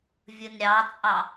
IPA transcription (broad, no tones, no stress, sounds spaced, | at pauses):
vʲ ɯ n ɾʲ ɑ t͡sʼ ɑ